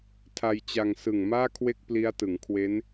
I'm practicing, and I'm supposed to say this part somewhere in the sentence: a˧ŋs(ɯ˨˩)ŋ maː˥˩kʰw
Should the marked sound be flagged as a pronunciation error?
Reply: no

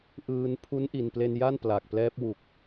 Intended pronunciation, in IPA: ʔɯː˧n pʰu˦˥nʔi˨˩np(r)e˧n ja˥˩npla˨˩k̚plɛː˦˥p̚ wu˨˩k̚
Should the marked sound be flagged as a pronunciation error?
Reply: yes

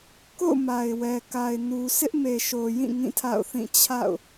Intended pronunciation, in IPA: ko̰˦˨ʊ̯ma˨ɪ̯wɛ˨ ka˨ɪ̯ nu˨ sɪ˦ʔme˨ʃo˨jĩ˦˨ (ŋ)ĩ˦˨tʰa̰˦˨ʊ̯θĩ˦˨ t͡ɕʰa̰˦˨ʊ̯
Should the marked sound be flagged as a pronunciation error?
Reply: no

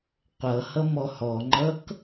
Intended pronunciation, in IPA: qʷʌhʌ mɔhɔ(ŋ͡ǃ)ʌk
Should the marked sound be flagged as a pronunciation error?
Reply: no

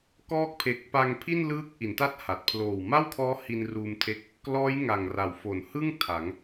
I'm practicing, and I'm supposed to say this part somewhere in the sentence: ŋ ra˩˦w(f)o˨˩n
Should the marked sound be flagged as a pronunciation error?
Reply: no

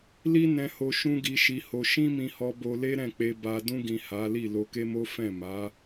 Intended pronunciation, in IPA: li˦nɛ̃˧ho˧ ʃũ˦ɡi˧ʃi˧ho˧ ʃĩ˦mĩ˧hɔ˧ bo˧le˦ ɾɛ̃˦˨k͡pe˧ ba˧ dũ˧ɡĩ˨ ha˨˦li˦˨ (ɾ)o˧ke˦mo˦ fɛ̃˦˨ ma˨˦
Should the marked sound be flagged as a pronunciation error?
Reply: yes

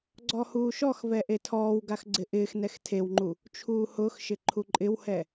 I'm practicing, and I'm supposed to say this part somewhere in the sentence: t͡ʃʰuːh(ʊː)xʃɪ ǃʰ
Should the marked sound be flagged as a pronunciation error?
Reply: no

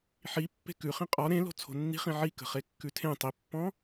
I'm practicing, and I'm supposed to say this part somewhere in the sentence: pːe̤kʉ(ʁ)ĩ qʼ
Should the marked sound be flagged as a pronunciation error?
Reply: yes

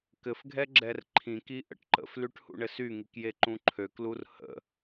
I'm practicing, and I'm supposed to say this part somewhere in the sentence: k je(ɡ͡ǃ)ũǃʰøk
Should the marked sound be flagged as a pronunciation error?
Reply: yes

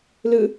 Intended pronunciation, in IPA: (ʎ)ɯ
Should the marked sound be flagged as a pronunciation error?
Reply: yes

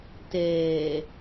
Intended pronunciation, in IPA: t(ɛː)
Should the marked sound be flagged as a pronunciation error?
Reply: no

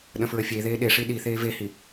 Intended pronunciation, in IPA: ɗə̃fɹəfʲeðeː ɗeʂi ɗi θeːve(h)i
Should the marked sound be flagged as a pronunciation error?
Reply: no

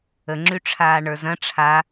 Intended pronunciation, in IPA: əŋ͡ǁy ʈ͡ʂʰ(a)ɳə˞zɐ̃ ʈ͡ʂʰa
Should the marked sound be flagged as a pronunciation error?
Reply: yes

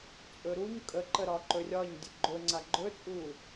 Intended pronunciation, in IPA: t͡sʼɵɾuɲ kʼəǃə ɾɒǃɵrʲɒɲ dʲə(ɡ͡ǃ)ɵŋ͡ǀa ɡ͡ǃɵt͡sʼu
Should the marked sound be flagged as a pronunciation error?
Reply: no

